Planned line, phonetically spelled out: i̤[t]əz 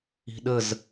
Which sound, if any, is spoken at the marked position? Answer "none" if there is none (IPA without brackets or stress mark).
ɗ